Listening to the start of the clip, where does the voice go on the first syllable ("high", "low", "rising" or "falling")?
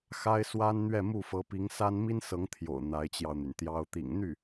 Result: high